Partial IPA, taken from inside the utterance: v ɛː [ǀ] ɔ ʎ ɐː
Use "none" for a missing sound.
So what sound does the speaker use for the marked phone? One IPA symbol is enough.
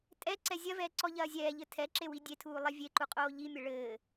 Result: ǀ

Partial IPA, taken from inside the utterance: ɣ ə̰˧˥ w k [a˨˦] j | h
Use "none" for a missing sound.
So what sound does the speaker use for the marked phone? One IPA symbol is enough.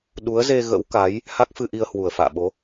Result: a˨˦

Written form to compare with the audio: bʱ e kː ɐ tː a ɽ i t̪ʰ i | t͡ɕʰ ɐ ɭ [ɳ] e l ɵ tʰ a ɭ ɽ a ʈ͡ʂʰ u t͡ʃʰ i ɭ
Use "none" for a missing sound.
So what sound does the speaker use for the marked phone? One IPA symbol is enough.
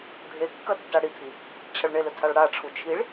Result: ɳ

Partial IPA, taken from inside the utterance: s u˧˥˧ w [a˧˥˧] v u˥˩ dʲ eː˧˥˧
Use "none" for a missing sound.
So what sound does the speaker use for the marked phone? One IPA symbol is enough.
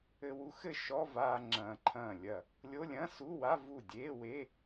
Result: a˧˥˧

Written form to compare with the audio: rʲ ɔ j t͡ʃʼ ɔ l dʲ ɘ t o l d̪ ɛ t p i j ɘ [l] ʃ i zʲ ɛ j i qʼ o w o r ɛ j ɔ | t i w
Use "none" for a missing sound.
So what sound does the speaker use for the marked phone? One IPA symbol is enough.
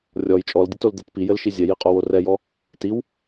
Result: l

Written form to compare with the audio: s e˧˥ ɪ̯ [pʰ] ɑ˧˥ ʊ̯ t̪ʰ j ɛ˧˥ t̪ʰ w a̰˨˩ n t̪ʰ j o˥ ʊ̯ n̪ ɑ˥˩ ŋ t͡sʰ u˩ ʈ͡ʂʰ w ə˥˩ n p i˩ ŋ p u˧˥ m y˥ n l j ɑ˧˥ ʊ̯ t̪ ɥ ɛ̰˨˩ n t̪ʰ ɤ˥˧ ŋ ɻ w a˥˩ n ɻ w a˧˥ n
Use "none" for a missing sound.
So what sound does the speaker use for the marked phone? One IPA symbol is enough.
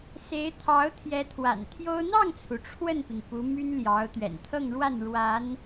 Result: t̪ʰ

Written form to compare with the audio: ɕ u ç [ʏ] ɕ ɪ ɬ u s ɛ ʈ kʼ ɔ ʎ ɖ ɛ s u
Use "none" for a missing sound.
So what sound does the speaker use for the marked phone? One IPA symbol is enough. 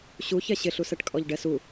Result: ɛ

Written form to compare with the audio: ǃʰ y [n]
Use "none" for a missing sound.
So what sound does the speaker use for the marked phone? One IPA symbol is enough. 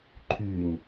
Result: n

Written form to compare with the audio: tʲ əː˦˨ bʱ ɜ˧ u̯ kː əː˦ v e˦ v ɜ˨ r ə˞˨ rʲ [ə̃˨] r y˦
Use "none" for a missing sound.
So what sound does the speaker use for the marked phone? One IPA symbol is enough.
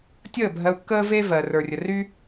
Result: ə˨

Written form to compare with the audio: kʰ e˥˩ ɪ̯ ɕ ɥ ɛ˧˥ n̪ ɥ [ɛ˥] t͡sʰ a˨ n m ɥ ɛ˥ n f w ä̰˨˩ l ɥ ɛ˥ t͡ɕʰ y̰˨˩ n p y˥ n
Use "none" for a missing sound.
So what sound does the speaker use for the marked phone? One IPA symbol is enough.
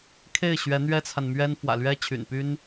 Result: ɛ˥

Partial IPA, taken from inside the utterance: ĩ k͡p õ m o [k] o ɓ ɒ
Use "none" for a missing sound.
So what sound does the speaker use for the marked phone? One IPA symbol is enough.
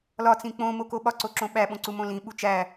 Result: k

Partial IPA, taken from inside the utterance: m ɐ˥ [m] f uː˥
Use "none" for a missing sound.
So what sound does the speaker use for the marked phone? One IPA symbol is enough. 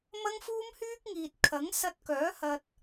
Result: ŋ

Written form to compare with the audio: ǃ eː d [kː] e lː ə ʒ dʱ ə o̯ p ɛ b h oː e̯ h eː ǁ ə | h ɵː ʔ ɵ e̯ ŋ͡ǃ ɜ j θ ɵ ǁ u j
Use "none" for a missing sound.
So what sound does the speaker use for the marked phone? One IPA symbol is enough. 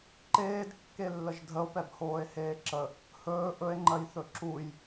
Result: kː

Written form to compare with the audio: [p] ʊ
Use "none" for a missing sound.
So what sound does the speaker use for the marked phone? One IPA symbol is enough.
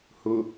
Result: h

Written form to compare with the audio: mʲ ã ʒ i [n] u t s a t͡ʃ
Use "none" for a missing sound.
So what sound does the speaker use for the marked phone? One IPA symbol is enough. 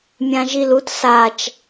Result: l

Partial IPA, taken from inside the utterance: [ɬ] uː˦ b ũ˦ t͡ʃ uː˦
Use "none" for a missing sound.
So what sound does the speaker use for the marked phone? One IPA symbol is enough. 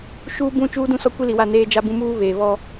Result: ʃ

